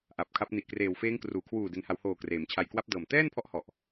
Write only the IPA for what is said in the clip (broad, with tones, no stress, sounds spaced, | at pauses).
ʔ a˨˩ p̚ kʰ a˦˥ p̚ n i˨˩ ʔ k r eː˨˩ w f eː˦˥ ŋ k r uː˩˦ kʰ w uː˨˩ d e˩˦ n h a˩˦ w h oː˨˩ k r eː˩˦ m t͡ɕʰ a˧ j k w a˦˥ p̚ d ɤː˨˩ m t ɛː˥˩ n pʰ ɔ˦˥ ʔ h ɔ˨˩ ʔ